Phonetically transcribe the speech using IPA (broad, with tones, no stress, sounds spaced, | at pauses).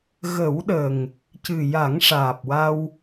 ɣ ə˨˩˦ w ɗ ə˨˩ ŋ | c ɨ˨˩ j a˨˩˦ ŋ ʂ aː˨˩ p̚ w a˧ w